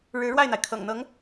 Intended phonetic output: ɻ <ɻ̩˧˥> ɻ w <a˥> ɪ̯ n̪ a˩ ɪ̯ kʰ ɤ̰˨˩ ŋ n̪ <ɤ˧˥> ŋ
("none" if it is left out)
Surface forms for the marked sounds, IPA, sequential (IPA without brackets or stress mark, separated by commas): ɻ̩˧˥, a˥˩, ɤ˧˥